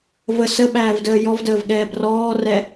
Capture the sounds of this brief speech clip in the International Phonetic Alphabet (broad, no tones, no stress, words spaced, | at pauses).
və səɓæːvdəː jɔvdəːvɠɛːb rɔːrɛ